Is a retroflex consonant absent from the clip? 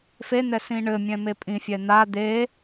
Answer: no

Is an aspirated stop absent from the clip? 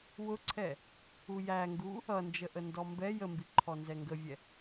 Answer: no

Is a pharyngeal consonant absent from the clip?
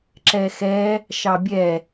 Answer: yes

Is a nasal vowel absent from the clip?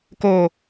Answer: yes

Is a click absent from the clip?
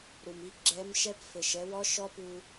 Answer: no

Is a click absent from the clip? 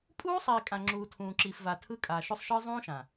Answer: no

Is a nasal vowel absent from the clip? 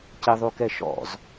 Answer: yes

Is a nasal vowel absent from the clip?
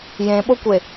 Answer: no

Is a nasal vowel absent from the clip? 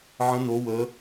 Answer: no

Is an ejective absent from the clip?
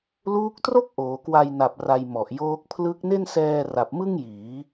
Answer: yes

